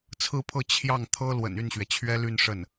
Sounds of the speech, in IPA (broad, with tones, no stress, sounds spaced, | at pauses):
t͡sʰ ɹ̩˥˧ pʰ ɤ˥˧ t͡ɕʰ j ɑ˥˩ ŋ t̪ʰ ɤ˥ l w ə̰˨˩ n y˥˩ n ɕ ɥ ɛ˩ t͡ɕʰ ɥ ɛ˥ l y˥˧ n ʂ ə˥˩ n